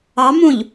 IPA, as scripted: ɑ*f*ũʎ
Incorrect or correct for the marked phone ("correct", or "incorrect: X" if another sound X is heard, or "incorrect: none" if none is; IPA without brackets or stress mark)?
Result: incorrect: m